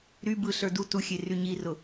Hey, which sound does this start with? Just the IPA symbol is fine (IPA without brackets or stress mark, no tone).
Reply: ɾ